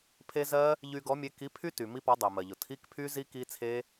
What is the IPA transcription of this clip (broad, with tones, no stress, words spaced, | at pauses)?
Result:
pʰe˦˥ zɜ˦˥ | ʎy˧ɡɔ˨˥mʲe˨˥ ki˨˥pʰy˦˥ ty˩mi˦˥pɔ˨˥ dˤɛ˩mɜ˩ʎʊ˩ tʰi˧˥˧kpʰy˦˥zi˦˥ ki˦˥t͡sʰe˦˥